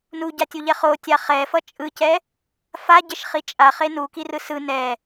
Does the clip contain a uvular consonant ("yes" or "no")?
yes